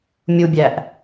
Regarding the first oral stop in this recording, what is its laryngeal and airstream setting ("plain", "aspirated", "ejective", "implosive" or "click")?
plain